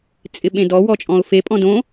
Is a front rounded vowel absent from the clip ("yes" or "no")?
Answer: yes